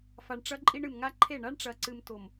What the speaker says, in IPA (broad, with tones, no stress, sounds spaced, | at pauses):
f a˨ ɳ ʈ͡ʂ ɐ˦ ǃʼ i˦ ɳ ɨ˨ m ŋ a˦ ǃʰ e˦˨ ɳ a˦ ɳ ʈ͡ʂ ɐ˨ ǀ ɨ˨ m t o˨ m